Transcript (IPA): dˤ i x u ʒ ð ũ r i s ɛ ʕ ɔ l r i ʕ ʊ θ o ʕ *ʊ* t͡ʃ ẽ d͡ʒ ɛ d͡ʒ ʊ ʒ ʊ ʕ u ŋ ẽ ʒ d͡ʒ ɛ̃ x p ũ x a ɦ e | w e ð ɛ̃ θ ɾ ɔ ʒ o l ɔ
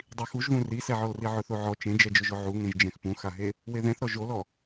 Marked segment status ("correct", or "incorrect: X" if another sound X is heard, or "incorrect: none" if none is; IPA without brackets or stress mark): incorrect: ɔ